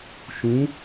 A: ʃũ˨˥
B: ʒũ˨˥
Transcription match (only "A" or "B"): A